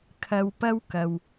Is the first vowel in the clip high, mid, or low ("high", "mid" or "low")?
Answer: low